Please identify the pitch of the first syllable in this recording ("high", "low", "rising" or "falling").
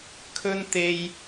high